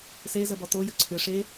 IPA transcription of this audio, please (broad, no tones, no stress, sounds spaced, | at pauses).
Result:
s e z ə b ɔ t o j ə ǀʰ ʏ ʂ e